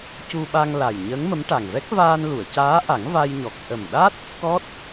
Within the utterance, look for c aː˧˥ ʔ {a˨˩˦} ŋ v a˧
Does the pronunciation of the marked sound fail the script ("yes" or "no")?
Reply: no